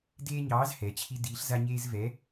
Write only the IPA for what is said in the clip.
deː˦ɲɑː˨˥z hɛ˩˧t͡ɕʰi˦ diː˨˥ɬza˦ɲeː˦z vɛ˨˥

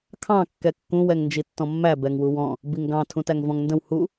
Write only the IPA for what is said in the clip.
kʰɑ̃ kːɛkːũ wɛŋnd͡ʒitːɔ̃mːæ bɛŋwuwɔ̃ | biŋɡɑ̃ tʰũtæŋvɔ̃ŋndə̃w hu

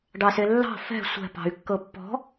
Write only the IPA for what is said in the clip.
ɖɑselːɑ̤ fɛ̤ sʷɛ̤ pɑ̤y̯kːɤpːɔ̤

